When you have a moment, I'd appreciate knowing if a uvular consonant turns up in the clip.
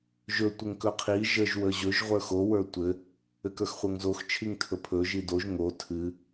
yes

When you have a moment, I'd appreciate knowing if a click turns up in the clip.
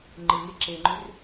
yes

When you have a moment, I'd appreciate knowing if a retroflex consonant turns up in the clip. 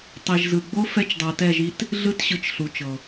no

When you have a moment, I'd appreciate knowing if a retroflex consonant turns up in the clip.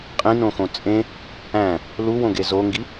no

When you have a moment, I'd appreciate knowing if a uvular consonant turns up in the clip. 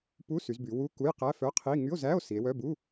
yes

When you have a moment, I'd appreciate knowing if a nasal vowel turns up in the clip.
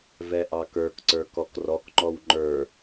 no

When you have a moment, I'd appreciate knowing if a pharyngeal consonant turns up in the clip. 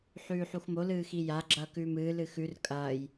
yes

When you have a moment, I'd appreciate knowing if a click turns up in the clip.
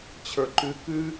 yes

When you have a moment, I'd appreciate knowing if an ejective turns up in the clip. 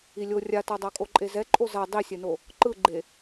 yes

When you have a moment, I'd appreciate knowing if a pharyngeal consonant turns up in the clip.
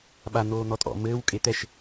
no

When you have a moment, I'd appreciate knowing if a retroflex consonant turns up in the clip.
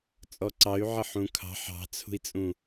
no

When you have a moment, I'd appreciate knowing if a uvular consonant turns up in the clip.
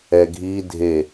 no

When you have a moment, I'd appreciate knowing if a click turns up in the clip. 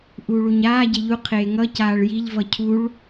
no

